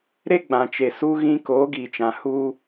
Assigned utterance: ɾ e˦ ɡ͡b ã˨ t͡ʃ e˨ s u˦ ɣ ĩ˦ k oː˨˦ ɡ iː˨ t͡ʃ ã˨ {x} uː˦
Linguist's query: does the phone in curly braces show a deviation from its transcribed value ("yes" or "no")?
yes